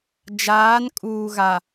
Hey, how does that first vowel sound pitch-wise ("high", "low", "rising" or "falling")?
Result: rising